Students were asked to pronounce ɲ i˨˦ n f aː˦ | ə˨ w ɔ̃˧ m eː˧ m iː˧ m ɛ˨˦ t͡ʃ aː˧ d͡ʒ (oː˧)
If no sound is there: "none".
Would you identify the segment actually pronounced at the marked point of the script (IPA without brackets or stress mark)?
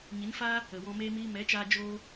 oː˦